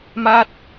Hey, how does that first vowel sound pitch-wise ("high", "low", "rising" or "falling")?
high